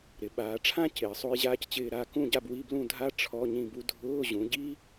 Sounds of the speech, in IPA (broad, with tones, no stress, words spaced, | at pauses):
ɾɪ˩˧ ɓaː˩˧ʈ͡ʂʰã˥ cɪː˩˧sˤo˥j ʑaː˥ct͡ɕɪː˥˧ ɾaː˥˧kũ˥˧ɟa˥˧b wi˧˥˧blũ˥˧dʱaː˥ ʈ͡ʂʰɔ˧˥˧ ɲĩ˥˧bu˥ dʱʊː˧˥˧ʑũ˩˧ɟi˥